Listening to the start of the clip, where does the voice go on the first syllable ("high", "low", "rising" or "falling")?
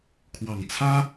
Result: low